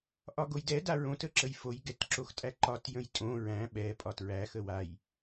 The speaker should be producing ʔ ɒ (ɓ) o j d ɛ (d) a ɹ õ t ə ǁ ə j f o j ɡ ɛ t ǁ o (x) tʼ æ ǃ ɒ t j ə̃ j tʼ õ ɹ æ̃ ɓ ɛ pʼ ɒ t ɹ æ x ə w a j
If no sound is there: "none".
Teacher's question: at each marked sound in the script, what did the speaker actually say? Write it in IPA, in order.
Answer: ɡ, d, x

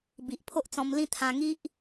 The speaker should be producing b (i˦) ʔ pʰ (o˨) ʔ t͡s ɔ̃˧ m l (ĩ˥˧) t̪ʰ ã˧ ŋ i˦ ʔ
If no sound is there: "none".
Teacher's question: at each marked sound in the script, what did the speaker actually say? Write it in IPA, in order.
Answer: i˨, o˦, ĩ˥˧

